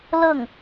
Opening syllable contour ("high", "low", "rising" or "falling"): falling